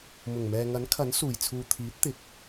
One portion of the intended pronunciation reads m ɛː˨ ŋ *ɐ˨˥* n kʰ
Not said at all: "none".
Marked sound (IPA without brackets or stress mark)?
ɐ˨˥